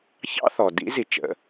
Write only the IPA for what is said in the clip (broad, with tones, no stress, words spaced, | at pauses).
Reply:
çɑ̰˥θɔ˩ dḭ˧˥zi˩t͡ʃə̰˩